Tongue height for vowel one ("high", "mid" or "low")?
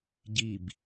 high